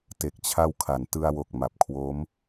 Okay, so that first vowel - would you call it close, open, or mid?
mid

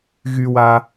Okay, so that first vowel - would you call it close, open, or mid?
close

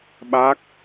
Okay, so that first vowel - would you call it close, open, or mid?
open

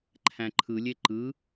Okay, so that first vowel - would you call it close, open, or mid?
open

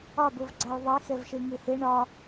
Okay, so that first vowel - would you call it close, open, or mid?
open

